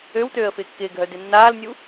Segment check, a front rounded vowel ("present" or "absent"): present